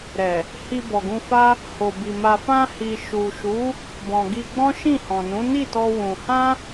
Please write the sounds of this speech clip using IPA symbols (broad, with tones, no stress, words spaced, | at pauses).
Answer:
ɾɛ˨ | hi˧bɔ˨ɡũ˧fa˦ | ho˨bi˨ ma˨fã˧ hi˨ʃu˨ʃu˨˦ | bɔ̃˨ ɡi˧ɡ͡bɔ̃˦ ʃĩ˦˨hɔ̃˨nũ˨˦ ni˦˨tɔ˧ wũ˧ hã˦